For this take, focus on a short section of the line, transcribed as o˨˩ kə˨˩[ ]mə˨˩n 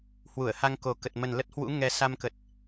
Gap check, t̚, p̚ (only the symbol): t̚